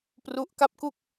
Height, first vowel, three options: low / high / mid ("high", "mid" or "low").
high